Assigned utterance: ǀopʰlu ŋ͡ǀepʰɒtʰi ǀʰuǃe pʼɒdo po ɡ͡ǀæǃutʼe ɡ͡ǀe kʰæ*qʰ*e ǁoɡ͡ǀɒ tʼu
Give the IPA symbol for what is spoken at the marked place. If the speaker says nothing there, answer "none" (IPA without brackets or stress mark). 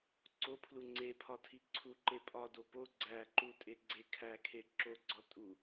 kʰ